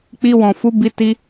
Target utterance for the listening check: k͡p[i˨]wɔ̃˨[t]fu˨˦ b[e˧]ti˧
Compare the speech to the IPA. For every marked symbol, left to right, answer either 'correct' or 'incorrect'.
incorrect: i˧, incorrect: none, incorrect: i˧

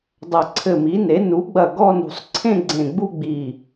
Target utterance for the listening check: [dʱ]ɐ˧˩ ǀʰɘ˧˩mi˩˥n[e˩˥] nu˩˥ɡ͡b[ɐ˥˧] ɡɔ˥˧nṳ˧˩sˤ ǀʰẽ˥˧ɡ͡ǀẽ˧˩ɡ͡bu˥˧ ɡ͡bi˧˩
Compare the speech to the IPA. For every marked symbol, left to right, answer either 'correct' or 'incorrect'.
incorrect: dˤ, correct, incorrect: ɐ˧˩

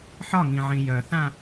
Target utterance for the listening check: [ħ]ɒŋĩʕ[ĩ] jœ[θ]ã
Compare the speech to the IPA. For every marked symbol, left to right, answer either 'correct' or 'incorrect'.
correct, correct, correct

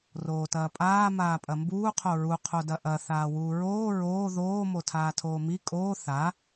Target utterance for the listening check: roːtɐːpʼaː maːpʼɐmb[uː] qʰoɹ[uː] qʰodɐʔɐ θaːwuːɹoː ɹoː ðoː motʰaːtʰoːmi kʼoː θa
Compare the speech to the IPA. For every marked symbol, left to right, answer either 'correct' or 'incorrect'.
correct, incorrect: u

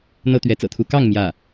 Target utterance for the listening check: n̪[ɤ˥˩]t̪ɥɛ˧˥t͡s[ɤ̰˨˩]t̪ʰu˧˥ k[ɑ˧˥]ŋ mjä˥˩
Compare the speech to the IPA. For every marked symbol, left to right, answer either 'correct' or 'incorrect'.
incorrect: ɤ˥, correct, incorrect: ɑ˥˧

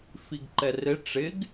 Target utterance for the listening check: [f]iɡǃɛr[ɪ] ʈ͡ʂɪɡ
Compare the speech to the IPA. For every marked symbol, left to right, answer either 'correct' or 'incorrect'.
correct, correct

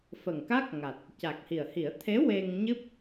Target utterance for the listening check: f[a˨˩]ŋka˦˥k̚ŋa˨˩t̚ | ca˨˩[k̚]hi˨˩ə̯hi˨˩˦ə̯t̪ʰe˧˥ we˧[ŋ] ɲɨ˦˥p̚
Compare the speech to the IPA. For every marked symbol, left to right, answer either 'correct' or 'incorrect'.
incorrect: ə˨˩, correct, correct

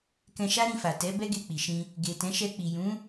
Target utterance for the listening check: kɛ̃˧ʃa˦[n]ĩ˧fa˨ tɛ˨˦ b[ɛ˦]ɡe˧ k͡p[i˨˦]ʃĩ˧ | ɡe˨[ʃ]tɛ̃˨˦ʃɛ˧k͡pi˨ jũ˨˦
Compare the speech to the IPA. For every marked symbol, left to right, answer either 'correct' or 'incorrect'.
incorrect: ɾ, correct, incorrect: i˨, incorrect: none

